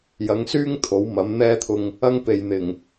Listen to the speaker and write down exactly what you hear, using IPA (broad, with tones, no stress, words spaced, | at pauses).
jɐ˨˥ŋsyː˥ŋ t̪ʰo˨˥wmɐ˨˥mn̪ɛː˥t̪ʰʊ˧ŋ | ɐ˥ŋpe˨jn̪ɪ˨˩ŋ